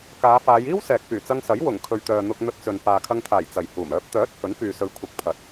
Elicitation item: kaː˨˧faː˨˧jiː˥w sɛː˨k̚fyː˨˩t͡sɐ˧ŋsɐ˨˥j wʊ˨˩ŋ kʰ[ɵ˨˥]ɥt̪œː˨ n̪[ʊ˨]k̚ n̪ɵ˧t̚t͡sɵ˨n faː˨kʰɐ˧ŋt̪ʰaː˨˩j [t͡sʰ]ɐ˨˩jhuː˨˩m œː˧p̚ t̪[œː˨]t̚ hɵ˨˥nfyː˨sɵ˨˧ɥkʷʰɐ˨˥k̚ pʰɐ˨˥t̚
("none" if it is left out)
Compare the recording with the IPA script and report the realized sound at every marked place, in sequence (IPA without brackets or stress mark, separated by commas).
ɵ˨, ʊ˧, t͡s, œː˨˥